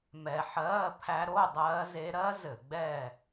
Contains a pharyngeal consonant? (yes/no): yes